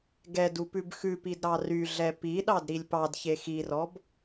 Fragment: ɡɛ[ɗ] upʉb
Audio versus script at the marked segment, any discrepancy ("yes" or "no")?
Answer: yes